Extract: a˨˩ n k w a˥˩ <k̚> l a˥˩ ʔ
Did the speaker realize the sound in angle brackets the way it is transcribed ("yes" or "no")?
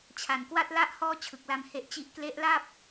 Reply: no